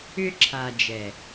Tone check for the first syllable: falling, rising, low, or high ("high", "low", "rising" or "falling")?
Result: high